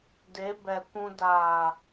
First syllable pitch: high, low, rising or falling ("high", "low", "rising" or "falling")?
rising